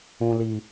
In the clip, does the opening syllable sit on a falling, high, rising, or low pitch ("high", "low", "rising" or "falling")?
high